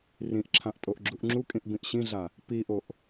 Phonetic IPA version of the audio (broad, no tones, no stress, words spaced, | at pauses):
rĩʔǁʰãʔ tʼoʔɡ͡ǁuʔŋ͡ǁukʼĩʔ bĩʔɕĩɮa | piʔoʔ